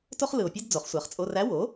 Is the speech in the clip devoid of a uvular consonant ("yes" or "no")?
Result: no